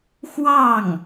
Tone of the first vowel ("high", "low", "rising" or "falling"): falling